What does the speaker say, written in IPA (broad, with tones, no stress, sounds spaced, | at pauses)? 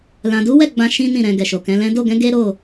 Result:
l ã˨ d u˨˦ w ɛ˦˨ ɡ͡b ã˧ ʃ ĩ˦ n ĩ˦˨ ɾ ɛ̃˨ ɡ ɛ˨ ʃ o˨ k ɛ̃˨˦ l ɛ̃˦ d o˦˨ ɡ ɛ̃˨˦ ɡ e˦ ɾ o˦˨